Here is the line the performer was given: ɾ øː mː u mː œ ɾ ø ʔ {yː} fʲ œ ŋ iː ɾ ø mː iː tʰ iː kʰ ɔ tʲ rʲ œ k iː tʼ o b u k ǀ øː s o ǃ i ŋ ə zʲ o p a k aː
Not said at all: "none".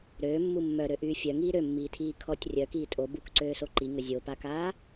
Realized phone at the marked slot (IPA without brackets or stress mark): yː